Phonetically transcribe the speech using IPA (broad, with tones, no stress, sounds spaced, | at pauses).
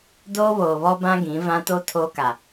d oː˦ β oː˨ β ɔ˦ b ã˦ ɡ ĩ˨˦ v ã˦ t o˦ tʰ oː˦ k a˨